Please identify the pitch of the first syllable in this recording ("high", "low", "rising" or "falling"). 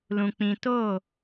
low